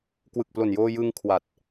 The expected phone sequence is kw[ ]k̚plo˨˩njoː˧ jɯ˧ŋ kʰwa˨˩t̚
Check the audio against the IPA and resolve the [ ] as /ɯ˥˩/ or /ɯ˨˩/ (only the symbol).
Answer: ɯ˨˩